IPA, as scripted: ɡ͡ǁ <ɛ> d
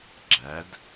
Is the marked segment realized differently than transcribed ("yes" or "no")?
yes